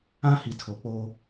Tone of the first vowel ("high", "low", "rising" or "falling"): high